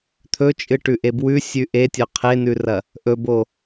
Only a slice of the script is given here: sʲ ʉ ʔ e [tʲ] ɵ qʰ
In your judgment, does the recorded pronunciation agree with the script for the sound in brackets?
yes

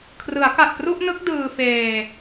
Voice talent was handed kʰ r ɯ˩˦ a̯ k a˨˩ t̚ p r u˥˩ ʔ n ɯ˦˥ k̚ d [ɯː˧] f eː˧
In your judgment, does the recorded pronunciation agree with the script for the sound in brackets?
yes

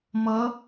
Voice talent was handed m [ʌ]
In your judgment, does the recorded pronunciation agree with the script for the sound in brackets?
yes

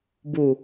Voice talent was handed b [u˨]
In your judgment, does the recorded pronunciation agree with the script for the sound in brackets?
yes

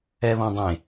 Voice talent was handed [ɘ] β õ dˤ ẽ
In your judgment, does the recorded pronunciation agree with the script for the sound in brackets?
no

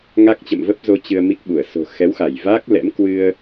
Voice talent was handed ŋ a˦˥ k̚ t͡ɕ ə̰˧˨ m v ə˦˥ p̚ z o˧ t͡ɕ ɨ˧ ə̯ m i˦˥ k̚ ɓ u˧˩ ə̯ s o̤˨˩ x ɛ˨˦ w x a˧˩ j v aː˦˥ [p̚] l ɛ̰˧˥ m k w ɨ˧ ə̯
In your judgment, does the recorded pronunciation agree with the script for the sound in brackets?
no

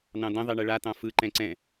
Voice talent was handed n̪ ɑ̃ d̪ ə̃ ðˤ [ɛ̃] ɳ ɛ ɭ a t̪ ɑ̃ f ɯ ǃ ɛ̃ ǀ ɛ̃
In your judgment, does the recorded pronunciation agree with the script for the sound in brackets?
no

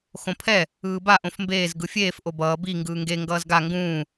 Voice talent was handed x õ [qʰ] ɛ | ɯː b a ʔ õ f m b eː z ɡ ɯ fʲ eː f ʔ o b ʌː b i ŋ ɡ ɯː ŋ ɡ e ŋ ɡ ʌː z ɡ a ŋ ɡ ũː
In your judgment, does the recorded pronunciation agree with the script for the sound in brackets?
no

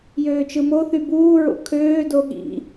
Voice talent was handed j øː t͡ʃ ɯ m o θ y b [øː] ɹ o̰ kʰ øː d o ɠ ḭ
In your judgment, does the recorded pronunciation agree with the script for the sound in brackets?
no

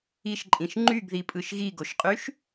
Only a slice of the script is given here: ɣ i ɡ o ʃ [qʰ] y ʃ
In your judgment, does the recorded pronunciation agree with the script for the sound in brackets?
no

